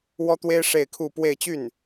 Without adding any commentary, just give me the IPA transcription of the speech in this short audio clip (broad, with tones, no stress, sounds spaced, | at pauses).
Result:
w ɔ˥ t̪ w e˥ ɪ̯ ʂ e˥˧ ɪ̯ kʰ u˥˧ p w e˥˧ ɪ̯ t͡ɕ y˥˩ n